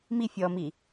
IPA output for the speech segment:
m i fʲ ɔ m i

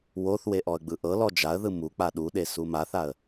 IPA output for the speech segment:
w o θ w e ʔ ɔ ə̯ ɡ͡b ɯ ʔ ɤ l ɔ d͡ʒ a ə̯ ð ɯ m u k͡p a ɗ u ɗ e s u m a θ a ə̯

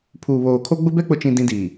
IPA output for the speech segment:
pʰ uː˨ β oː˨ kʰ o˦ ɡ͡b ʊ˦ b ɛ˦ k͡p ʊ˨ t͡ʃ ĩ˨ d ĩ˦ d iː˨

